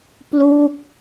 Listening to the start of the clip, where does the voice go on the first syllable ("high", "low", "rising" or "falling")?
falling